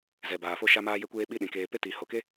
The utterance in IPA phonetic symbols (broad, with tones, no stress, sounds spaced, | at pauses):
z ɛ˨ b aː˨ f o˦ ʃ a˦ m aː˦ j e˦ kʷ eː˦ ɓ i˦ ɗ ĩ˨ k eː˧ p e˦ t i˨ h o˨ k e˦